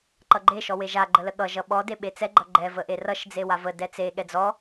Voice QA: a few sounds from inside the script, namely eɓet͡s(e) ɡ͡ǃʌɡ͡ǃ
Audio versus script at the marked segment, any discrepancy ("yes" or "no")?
yes